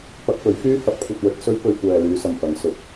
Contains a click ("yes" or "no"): no